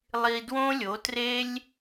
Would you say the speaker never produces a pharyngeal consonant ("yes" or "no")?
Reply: yes